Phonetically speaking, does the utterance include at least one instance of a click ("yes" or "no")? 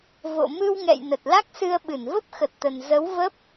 no